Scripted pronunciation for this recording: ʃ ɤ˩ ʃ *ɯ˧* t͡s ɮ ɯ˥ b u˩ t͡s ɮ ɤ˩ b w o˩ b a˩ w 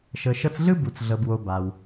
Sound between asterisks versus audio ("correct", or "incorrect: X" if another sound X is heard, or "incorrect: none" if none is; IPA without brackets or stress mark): incorrect: ɤ˧